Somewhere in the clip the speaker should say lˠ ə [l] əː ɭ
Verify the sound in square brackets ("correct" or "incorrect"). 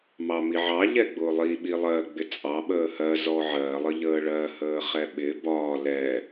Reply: incorrect